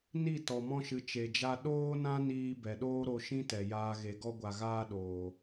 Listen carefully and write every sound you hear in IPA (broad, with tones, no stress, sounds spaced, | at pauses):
n i˦˨ t ɔ˨ m ɔ̃˧ ʃ ɨ˨ t͡ʃ e˨ d͡ʒ a˧ ɗ oː˦ n ã˦ n iː˧ b ɛ˨ ɗ oː˦ ɾ o˧ ʃ ĩ˦ t ɛ˨ j aː˧ ɣ e˨ ɡ ɔ˧ ɡʷ a˨ ɣ aː˦ ɗ oː˨